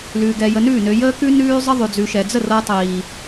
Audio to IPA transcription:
l ʉ˨ ɡ ɛ˨ j ə˨ n ʉː˦˨ n ø˨ j əː˦ k ʉ˦ n ʉː˦ zˤ ə˦ ðˤ ʉ˨ d͡z ʉ˨ ʃ ɛ˨ d͡z ə˦˨ r ɤ˦ tˤ iː˨

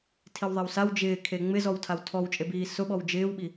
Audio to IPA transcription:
tʰ i w ðˤ e w s a w d͡ʒ ɪː kʰ e ŋ͡m ɪ z ɔ w tʰ a w tʰ ɔ w t͡ʃʼ e b iː s ʊ ɓ ɔ w d͡ʒ ɪː w ɓ i

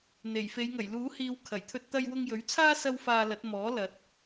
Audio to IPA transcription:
n̪ e˨˩ j f e˨˧ j ŋ ɐ˨˩ j l uː˨˥ h iː˨˧ w kʰ ɐ˨˩ j t̪ʰ ɵ˧ t̚ t̪ ɐ˧ j w ʊ˧ ŋ j ɵ˨˥ ɥ t͡sʰ aː˥ s ɐ˥ w f aː˧ l ɐ˨˥ t̚ m ɔː˨˥ l ɐ˨˥ t̚

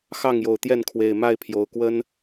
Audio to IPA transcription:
x ɑ˥˨ ŋ j o˨˩ ʊ̯ t̪ j ɛ˥˨ n kʰ w e˨˩ ɪ̯ m a˥˨ ɪ̯ pʰ j o˨˦ ʊ̯ k w ə˦ n

